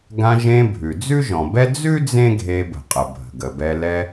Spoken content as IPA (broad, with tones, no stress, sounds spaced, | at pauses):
ɡ ã˧ ʒ ẽ˧ bʱ ʉ˩ d͡z ʉ˥ ʒ ɔ̃˩ b ɛ˥ d͡z ʉ˥ d͡z ẽ˥ ɡʱ e˧ b ə̤˩ qʼ ə˩ bʱ ə̤˩ ɡ ə˩ b ɛ˧ l ɛ˧